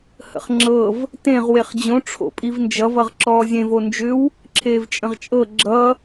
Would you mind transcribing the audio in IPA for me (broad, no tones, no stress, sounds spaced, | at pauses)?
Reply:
h ə̰ χ ŋ͡ǁ ɤ v | t ẽ ʁ w e χ d͡ʑ õ ʈ͡ʂʰ o̰ pʼ i v n d͡ʒ ʌ v ʌ ʁ ǁ ɔː zʲ ẽ v o n d͡ʒ ʏ w | ǁʰ eː v t͡ʃʼ ə̃ ʁ t͡ʃʼ ɤ ɡ͡ǁ ʌ